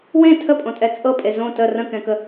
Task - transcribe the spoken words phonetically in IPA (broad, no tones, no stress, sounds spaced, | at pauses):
w ẽ tʰ ə pʼ õ tʼ ɛ t͡sʼ ɤ pʼ e z õ t ə r ə̃ k ɛ̃ k ə